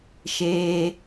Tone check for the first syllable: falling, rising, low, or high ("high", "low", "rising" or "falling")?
high